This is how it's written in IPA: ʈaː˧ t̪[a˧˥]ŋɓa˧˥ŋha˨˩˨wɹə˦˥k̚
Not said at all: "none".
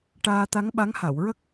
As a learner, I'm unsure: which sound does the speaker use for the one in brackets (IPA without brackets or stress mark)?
a˧˥